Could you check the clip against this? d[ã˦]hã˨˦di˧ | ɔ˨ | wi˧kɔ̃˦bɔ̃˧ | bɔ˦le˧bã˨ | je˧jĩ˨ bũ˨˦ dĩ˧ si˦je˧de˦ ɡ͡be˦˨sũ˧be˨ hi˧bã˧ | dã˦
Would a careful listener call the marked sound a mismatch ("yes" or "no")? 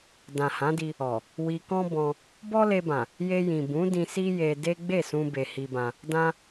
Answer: yes